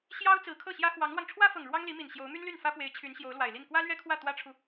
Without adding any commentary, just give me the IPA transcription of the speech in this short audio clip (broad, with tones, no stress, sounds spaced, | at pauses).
ɕ j ɑ˥ ʊ̯ t͡s ɹ̩˧˥ kʰ ɤ˥˩ ɕ j ä˥ x w ɑ˧˥ ŋ l w ɑ˧ ŋ ʈ͡ʂʰ w ä˥ f ɤ˨˩ ŋ ɻ w ɑ˥ ŋ l i˧˥ m i˨˩ n ɕ j o˧˥ ʊ̯ m y˥ n l y˥˩ n f ä˥ p w e˧˥ ɪ̯ t͡ɕʰ y˧˥ n ɕ j o˧˥ ʊ̯ l w a˨˩ ɪ̯ l i˥˩ n k w ä˥ l ɥ ɛ˥ kʰ w ä˥˩ t̪ w ä˥ ʈ͡ʂʰ u˨